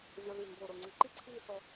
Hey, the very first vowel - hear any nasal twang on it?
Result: no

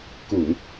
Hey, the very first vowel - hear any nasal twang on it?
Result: no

